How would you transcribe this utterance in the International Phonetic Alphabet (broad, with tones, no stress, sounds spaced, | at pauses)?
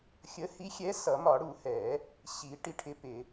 xʲ ə˨˥ h i˨˥ xʲ ɛ˨˥ s ʌ˨˩˦ m ɒ˨˩˦ ɽ u˨˩˦ h ɛ˨˩˦ | ɕ i˨˩˦ ʈ i˨˥ ʈʰ ɪ˨˥ p ɪ˨˩˦